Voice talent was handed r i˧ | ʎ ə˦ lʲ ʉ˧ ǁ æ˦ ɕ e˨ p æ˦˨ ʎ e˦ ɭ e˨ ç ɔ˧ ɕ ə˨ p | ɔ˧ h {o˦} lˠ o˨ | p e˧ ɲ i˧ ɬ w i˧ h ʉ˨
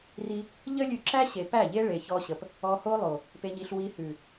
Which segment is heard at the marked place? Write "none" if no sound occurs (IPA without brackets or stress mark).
o˦